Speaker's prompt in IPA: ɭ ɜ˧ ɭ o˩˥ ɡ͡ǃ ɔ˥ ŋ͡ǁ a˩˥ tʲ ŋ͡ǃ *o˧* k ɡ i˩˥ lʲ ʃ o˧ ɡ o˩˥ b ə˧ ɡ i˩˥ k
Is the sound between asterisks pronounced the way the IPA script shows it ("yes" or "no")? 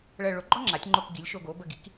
yes